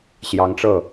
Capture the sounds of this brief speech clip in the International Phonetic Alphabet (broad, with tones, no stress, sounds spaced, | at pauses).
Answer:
ɕ j ɑ˧˥ ŋ ʈ͡ʂ ɤ˥˩